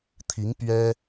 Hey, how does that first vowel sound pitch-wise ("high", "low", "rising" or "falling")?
rising